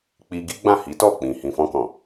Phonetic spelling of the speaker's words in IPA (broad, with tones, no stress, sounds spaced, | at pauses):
k͡p i˧ ɡ i˦ ɡ͡b ã˦˨ h i˨˦ t ɔ˦˨ k͡p ĩ˨ h ĩ˨ f ɔ̃˧ k ɔ̃˨